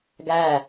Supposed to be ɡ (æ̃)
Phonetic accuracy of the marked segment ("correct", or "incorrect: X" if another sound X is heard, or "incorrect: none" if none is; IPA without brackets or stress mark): incorrect: æ